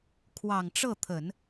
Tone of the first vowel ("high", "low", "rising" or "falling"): low